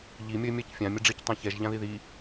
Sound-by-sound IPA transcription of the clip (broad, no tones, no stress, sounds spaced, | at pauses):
ʎ i mʲ ʌ ɪ̯ mʲ a c fʲ ã mʲ ʌ ɖ͡ʐ i c tˤ ã ç ɛ ʒ ʎ ã ð i ð i